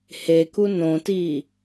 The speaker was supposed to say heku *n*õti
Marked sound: correct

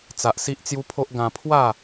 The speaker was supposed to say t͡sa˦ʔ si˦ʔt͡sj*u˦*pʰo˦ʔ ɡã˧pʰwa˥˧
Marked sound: correct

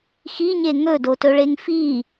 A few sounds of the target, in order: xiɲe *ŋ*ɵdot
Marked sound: correct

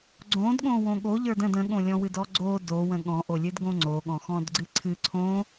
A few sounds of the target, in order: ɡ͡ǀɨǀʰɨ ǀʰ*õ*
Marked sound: correct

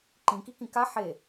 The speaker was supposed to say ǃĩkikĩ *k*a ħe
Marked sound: correct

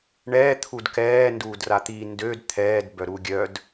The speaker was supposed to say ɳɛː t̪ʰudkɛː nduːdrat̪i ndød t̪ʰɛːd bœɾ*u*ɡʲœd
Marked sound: correct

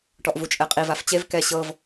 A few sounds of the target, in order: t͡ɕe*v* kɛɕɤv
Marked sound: correct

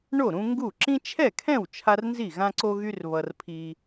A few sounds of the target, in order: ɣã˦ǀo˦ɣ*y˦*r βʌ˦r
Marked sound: correct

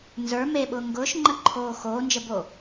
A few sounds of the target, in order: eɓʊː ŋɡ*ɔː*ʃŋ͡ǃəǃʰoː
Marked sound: incorrect: ʊː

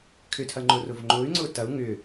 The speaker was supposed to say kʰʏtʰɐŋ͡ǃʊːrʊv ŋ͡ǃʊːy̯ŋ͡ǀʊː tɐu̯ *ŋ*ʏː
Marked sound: correct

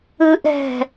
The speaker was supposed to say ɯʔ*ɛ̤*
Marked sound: correct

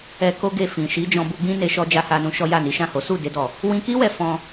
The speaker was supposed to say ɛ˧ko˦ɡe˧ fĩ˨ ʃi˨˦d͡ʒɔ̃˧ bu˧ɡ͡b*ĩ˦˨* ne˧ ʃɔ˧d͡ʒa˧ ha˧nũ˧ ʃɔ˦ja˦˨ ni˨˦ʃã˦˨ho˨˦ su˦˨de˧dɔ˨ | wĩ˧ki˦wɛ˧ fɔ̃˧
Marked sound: incorrect: ĩ˦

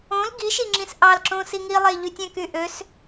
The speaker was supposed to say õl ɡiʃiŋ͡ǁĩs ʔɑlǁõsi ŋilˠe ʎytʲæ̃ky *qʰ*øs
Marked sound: incorrect: ʔ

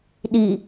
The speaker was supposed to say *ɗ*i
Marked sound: correct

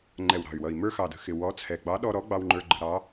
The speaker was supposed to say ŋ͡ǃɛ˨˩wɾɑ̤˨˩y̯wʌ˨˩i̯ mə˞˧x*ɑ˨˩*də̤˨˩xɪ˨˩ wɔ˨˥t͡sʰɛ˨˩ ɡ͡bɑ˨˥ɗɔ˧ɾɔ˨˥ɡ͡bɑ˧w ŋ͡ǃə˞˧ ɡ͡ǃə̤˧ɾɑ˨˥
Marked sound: correct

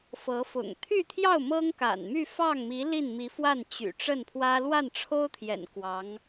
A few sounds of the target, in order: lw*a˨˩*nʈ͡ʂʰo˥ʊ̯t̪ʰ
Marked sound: incorrect: a˥˩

